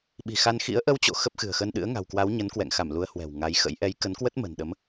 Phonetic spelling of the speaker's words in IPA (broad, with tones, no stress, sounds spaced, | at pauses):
ɓ i̤˨˩ x a˧ n x ḭ˧˥ ə̯ ʔ ə˧ w t͡ɕ o̰˧˨ x ə˦˥ p̚ x ɨ̤˨˩ ə̯ x ə˧ n ɗ ɨ̰˧˥ ə̯ ŋ a̤˨˩ w k w a˨˦ w ɲ ə˨˦ n k w ɛ̰˧˨ ŋ x a˧˩ m l u˨˦ ə̯ h w ɛ̤˨˩ w ŋ a˨˦ j x ə̰˧˥ j ʔ ɛ˨˦ j k ə˨˦ n k w ə˦˥ t̚ m ə̤˨˩ n ɗ ə˨˦ m